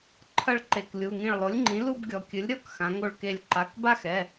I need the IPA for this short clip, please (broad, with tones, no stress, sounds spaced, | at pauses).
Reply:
ǃʰ ɐ˥˧ ɭ ǃ e˧˩ k lʲ u˩˧˩ ŋ ĩ˧˩ ɭ lˠ o˩˥ lʲ ŋ͡ǃ ĩ˩˥ l u˥˧ b ɡʲ ɔ˩˧ kʲ ɨ˩˥ lʲ ɾʲ ɔ˥˧ k x ã˩˧ ŋ o˧˩ ɭ k e˧˩ lʲ ǃ a˩˧˩ k b a˥˧ x ɛ˩˧˩